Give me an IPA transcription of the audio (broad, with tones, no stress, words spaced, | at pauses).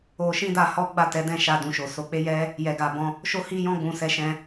o˦ ʃĩ˦da˧ hɔ˦ɡ͡ba˦˨tɛ˨˦dɛ̃˦˨ ʃa˧dũ˨ʃo˨ so˨˦k͡pe˦jɛ˦ | jɛ˧ɡa˧bɔ̃˦ | ʃo˦hi˦jɔ̃˦ɡ͡bũ˧ sɛ˧ʃɛ̃˧